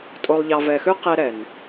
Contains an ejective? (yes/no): yes